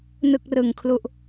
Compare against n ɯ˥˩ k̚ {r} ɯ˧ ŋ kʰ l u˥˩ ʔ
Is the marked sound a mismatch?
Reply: no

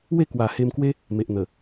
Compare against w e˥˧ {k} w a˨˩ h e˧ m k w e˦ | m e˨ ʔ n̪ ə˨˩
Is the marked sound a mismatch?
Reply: no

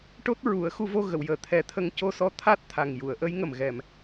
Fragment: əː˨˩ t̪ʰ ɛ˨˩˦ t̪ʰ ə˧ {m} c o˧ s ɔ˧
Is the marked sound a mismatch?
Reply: yes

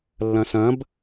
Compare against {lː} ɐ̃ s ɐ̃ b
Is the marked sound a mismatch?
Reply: no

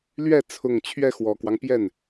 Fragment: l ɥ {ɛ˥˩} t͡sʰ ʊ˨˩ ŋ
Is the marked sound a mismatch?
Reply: no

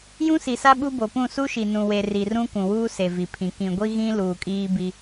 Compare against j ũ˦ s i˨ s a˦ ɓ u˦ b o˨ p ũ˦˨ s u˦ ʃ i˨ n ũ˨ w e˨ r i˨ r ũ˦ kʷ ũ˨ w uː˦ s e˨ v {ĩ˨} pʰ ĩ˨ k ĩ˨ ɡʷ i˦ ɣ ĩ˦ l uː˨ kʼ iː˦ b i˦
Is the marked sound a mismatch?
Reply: yes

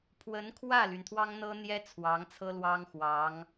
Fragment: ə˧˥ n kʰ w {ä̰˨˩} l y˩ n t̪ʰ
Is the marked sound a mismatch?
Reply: yes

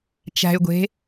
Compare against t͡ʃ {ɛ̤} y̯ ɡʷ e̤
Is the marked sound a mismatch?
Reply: yes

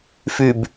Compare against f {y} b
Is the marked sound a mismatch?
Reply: no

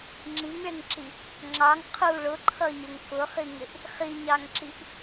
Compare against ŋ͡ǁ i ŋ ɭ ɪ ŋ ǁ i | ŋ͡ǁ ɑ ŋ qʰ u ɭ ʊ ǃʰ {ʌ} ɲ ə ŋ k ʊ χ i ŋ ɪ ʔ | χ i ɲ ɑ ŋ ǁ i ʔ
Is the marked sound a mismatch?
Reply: no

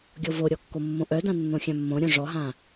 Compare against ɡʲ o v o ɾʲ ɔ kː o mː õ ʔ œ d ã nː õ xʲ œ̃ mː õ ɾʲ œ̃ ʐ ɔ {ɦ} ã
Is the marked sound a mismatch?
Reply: no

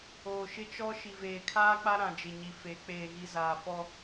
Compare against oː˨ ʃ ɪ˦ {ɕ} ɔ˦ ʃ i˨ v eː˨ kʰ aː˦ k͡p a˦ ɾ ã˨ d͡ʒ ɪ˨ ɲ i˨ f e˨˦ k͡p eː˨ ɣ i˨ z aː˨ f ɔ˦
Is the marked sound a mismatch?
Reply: yes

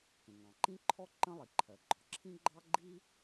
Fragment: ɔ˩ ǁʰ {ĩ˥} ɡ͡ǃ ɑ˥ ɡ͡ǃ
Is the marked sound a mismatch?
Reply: no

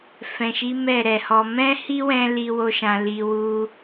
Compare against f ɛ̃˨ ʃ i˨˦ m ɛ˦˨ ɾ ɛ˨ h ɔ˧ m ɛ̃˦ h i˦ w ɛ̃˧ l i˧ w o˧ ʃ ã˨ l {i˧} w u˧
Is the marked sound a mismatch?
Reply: yes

